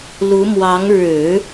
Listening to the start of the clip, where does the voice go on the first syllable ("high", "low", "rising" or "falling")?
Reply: rising